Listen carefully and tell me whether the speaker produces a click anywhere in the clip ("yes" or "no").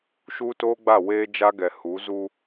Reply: no